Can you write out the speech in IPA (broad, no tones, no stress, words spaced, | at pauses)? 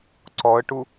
ǀɔə̯ʈu